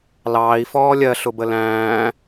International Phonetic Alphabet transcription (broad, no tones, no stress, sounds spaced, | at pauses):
l ɑː i̯ f ɔː lʲ ɜ ɬ ʊ b ə l æ̃ː